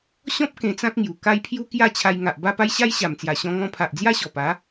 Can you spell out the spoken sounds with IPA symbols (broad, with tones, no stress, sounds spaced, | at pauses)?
ɕ ɔ̃˦ p̚ k ẽ˧ t͡s ã˦ k̚ ŋ j u˨˩ k a˦ j pʰ j u˦ k j a˥˧ t͡ɕʰ a˧ j ŋ a˨ ʔ b a˥˧ p a˦ j ɕ a˦ j ɕ a˨˩ m t͡s j a˨˩ ɕ ɔ̃˧ ŋ ɔ̃˧ pʰ a˨ ʔ d͡z j a˦ ɕ ɔ˨˩ p a˨˦